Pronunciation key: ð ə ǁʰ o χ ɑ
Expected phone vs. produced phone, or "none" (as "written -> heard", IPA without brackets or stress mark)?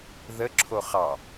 none